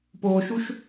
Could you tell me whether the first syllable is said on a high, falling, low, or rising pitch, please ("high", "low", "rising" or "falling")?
low